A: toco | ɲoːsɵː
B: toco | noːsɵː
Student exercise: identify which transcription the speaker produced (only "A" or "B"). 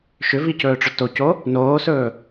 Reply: B